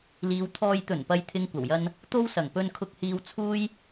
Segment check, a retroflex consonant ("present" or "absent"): absent